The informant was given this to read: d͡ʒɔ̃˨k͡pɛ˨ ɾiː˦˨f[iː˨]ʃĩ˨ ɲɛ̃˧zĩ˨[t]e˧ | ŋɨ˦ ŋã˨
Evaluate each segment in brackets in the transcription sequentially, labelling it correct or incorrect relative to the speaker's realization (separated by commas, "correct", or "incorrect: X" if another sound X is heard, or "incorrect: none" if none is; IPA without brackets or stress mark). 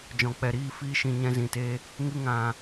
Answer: incorrect: iː˧, correct